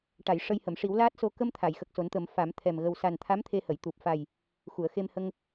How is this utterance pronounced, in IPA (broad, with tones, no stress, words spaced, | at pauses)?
ʈa˨˩˨j ʂə˧jhə˨˩˨m ʂi˨˩˦wlaː˦˥t̚so˧ kə˧m t̪ʰa˨˩˨jxə˨˩k̚so˨˩˦nt̪ə˨˩˦m fa˨˩˦mt̪ʰɛ˨˩m ɣə˨˩wsa˨˩nt̪ʰa˧˥m t̪ʰe˧hə˨˩˨j t̪u˨˩p̚fa˨˩j | xu˨˩˨ə̯xe˧mhə˧ŋ